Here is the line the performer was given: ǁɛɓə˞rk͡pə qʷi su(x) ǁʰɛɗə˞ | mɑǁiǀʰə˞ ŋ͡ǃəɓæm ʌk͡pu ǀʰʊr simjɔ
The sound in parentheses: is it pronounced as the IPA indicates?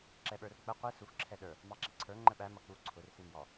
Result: yes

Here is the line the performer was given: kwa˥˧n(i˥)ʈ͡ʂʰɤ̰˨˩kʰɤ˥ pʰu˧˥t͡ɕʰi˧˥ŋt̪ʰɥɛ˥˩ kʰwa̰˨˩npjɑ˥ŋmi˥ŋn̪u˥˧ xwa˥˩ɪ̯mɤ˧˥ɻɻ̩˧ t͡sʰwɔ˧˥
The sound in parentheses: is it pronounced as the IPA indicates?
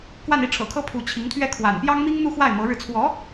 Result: no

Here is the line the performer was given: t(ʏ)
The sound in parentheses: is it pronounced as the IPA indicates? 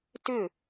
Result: yes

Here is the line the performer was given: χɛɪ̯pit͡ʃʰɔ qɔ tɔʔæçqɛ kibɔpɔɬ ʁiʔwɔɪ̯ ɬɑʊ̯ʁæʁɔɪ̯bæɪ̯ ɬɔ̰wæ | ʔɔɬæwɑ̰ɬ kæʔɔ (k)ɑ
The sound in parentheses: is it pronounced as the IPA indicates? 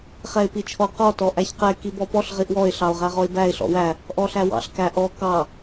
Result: yes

